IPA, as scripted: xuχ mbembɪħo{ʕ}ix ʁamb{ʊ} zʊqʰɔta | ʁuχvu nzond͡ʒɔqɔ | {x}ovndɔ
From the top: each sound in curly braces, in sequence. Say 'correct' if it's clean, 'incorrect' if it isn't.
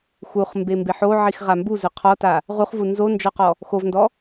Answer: correct, incorrect, correct

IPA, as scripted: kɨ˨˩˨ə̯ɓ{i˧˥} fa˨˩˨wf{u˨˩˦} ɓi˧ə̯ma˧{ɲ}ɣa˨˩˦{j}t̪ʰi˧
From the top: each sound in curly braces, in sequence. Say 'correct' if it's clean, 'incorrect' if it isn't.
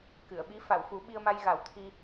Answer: correct, correct, incorrect, incorrect

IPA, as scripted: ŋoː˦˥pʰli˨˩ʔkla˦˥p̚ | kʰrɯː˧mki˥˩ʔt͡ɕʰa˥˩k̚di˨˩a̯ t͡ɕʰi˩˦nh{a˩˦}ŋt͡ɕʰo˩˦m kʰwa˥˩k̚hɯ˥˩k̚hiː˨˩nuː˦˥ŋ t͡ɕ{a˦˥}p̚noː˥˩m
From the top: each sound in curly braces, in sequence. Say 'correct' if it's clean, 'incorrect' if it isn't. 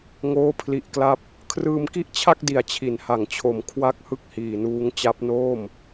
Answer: correct, correct

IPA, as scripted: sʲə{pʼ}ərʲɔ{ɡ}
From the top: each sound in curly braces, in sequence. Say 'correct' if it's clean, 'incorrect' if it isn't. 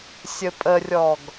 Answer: correct, correct

